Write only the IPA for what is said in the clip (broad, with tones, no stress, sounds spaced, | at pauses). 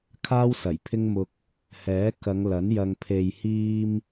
kʰ aː˥ w s ɐ˨˩ j pʰ ɪ˥ ŋ m ʊ˧ k̚ | h ɛː˨˥ k ɐ˨˧ ŋ l ɐ˨˥ n j ɐ˧ ŋ pʰ e˨ j h iː˧ m